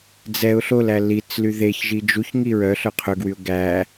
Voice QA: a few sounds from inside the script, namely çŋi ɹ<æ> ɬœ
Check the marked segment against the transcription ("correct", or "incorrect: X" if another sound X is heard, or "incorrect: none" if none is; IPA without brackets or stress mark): incorrect: œ